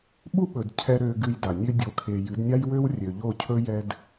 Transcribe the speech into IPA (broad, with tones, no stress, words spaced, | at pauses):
ɓu˦ɓɵ˨d cʰɛ˧ ɾø˧ɡɨ˧jda˨ nʲø˧dʲo˨kʰe˨ jɨ˨˦dnʲa˦jwø˦wrʲø˨ ʎo˦˨cʰɵ˦jɛ˦d